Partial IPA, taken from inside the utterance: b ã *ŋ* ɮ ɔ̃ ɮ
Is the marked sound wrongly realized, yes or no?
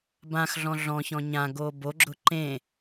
yes